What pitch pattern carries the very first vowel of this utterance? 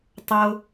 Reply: high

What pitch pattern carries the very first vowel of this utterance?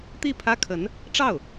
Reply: falling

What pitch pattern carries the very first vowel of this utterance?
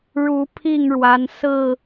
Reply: rising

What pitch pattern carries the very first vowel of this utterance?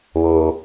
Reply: low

